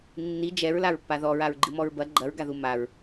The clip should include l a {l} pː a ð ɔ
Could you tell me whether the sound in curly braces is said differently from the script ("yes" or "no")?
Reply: yes